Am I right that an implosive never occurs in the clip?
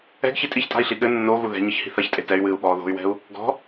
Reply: no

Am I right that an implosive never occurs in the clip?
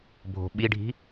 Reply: no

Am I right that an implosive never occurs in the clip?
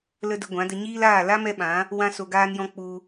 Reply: no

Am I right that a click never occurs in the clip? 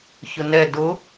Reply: yes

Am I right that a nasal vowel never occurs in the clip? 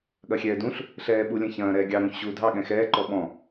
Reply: no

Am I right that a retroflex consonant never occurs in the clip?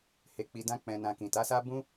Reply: yes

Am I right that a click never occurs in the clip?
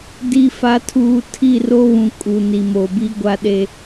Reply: yes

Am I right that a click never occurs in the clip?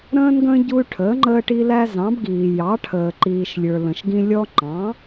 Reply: no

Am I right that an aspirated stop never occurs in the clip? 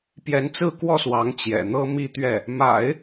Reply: yes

